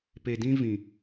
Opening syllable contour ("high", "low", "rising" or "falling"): low